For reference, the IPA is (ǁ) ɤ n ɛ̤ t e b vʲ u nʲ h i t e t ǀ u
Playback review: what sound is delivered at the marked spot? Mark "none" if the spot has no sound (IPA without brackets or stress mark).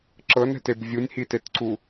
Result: ǁ